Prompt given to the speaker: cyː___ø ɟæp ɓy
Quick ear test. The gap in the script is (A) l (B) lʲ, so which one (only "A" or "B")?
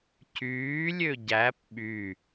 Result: B